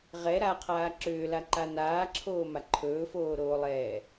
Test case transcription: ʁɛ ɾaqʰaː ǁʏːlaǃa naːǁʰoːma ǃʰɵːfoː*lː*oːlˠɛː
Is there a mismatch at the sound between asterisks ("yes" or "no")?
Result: yes